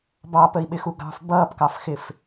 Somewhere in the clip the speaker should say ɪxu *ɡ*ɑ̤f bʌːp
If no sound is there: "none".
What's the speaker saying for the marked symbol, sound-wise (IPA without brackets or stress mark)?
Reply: ɡ